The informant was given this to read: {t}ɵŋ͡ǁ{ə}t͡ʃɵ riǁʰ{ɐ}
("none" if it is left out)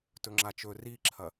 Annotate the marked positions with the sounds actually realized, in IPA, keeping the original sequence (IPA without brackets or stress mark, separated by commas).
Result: t, a, ɐ